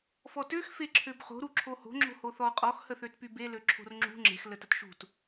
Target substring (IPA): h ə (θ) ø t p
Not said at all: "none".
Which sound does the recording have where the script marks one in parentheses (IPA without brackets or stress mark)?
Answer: θ